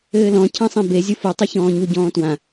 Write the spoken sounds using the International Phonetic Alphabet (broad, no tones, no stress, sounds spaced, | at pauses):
ɘː l ɔ̃ cʰ ã sˤ ẽ b e zʲ u f u tˤ ɨ ç ɔ̃ː ɲ u ɟ ɔ̃ː t w ã